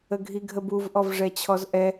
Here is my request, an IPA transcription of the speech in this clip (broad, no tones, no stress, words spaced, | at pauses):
əɡʱiɡʱəbuv ʔɔvʐɛt͡ɕʰɔzʔɛ